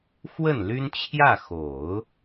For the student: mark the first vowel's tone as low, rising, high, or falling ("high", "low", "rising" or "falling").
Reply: falling